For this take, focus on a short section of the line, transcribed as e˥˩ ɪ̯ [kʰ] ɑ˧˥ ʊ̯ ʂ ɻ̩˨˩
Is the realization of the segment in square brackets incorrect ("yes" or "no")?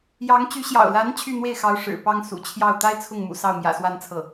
yes